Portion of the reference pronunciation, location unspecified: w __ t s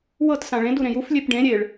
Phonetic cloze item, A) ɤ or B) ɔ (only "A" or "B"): A